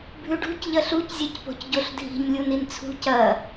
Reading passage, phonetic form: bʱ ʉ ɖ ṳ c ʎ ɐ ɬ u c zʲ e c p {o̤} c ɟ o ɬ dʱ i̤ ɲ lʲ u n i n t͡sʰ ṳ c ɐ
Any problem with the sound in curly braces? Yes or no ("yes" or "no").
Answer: no